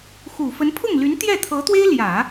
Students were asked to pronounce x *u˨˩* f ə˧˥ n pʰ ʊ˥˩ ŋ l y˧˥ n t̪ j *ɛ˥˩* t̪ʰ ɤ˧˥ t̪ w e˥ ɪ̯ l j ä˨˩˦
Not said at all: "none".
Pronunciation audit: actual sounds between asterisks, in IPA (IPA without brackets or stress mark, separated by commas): u˨˩, ɛ˥˩